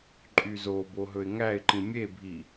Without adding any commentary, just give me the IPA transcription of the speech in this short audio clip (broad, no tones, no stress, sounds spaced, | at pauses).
ǃʼ y z o b o ɦ ɵ ɪ̯ ŋ æ ɪ̯ ǃ ĩ mʲ e bʱ i